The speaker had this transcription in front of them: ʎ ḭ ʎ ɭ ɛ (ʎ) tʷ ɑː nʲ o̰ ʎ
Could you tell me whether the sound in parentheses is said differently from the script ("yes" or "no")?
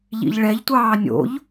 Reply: no